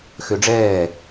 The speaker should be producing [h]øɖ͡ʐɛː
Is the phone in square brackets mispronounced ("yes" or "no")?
yes